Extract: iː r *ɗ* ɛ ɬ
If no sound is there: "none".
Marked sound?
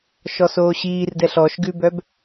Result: d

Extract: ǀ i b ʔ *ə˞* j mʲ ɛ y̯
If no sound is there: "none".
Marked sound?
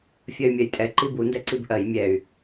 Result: ɜ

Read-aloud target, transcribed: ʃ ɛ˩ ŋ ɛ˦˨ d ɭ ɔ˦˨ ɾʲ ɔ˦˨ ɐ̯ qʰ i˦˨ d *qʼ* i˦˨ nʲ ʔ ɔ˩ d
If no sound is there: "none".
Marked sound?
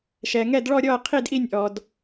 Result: ʔ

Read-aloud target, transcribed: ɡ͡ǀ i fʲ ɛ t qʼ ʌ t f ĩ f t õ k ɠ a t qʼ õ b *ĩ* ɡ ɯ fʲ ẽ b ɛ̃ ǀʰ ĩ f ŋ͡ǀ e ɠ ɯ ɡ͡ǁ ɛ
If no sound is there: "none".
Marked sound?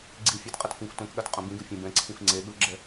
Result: ĩ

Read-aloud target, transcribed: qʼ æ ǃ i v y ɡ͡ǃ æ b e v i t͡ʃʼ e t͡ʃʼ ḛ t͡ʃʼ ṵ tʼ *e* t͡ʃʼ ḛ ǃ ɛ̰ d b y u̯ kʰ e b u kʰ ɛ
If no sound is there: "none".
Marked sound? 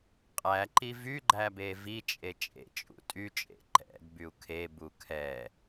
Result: y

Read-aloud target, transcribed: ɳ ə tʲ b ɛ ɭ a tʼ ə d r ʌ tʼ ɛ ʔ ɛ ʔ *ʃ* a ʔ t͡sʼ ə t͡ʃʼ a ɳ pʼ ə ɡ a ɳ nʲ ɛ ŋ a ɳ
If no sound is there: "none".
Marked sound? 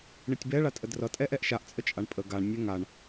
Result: ʃ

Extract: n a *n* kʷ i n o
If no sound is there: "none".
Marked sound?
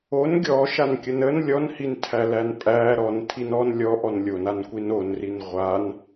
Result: n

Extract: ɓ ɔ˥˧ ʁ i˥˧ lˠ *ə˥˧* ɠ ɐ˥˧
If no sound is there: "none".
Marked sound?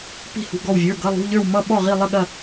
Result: ə˥˧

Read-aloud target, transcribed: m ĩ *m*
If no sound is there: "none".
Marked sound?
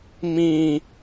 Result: none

